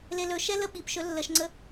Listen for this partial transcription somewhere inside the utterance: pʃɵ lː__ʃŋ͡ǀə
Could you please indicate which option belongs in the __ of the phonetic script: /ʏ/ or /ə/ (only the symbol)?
ə